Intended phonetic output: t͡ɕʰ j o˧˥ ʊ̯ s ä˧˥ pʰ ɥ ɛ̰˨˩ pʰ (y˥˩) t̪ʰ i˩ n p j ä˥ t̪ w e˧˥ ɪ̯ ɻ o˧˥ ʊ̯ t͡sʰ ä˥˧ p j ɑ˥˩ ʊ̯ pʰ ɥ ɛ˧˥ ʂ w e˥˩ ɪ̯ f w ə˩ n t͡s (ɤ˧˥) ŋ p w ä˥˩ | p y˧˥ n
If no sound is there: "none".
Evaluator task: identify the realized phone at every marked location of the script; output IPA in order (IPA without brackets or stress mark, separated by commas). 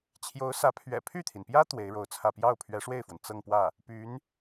y˥˩, ɤ˥˧